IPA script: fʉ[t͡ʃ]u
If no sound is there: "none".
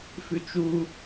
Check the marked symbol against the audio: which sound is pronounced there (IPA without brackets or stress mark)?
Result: t͡ʃ